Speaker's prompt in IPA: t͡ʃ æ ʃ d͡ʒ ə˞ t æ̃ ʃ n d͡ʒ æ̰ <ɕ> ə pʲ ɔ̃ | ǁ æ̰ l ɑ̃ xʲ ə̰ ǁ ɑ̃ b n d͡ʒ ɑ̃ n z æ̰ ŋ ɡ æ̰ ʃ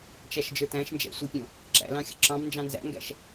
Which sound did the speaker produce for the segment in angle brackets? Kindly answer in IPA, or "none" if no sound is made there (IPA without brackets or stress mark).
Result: sʷ